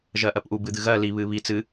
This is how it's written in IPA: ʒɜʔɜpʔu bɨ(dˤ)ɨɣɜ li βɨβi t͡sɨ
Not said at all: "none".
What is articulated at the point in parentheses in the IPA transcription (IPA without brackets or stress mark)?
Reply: d̪